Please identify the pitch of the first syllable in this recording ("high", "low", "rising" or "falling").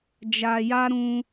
low